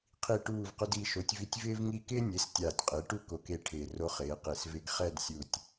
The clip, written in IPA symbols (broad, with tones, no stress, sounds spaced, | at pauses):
qʰ i˧˩ ʈ uː˧˩ v q ʊ˧ d i˧˩ ʃ o˩˥ tʲ v i˧ tʲ v ɪː˥ v ŋ i˥˨ k ɪː˥ nʲ e˩˥ s tʲ aː˧˩ tʲ qʼ ɪː˩˥ ʈ u˥˨ k o˧ k e˥˨ ʈʰ ɪː˧˩ r o˧ χ ɪː˩˧ q e˧˩ s v ɪ˧ ɡ χ ɛ˥˨ d sʲ u˧˩ tʲ